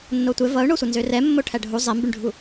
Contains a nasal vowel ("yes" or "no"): no